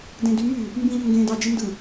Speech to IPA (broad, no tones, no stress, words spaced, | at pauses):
dẽdymy | mbĩ ʎøŋɡẽːdɑ d͡ʒindɯ